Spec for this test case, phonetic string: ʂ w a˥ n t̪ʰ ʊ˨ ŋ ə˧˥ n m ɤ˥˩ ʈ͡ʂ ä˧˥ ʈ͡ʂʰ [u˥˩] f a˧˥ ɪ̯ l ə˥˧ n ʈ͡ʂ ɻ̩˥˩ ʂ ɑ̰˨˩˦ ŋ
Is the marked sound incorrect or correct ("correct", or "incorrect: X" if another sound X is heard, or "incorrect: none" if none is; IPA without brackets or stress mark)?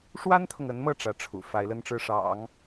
incorrect: ṵ˨˩